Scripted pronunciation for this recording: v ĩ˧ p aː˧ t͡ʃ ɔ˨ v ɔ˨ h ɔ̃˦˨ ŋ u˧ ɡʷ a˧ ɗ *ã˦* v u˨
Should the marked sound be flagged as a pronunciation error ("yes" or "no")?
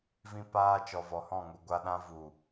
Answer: no